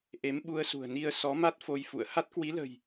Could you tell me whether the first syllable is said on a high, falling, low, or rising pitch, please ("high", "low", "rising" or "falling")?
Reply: rising